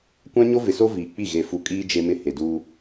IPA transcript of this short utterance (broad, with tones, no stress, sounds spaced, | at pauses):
kʷ ã˦ ɲ o˦ v ɪ˨ s o˦ v iː˨ k͡p i˦˨ ɣ e˨ f u˨˦ kʼ iː˦ d͡ʒ e˦ m ɪ˦ h e˨ d uː˦